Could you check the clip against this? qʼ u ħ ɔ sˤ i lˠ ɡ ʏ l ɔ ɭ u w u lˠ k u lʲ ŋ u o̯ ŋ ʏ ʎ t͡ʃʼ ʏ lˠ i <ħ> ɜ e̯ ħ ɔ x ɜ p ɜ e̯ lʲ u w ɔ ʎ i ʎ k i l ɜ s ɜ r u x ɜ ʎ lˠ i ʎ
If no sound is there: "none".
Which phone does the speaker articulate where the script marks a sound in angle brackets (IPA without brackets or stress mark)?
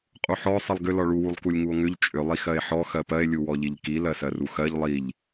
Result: x